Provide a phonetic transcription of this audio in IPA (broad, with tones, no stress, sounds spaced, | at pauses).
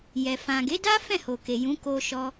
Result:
j ɛ˨ f ã˨ ɡ e˨˦ d a˦ f ɛ̃˦˨ h o˨ k e˨ j ũ˨˦ k o˧ ʃ ɔ˧